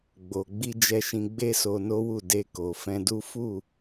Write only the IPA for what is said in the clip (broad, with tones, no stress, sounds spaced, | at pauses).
ɡ͡b o˨ ɡ͡b i˧ d͡ʒ ɛ˧ ʃ ĩ˧ ɡ͡b e˦ s o˧ n o˦ w u˦˨ d e˧ k o˨ f ɛ̃˧ d u˦ f u˦˨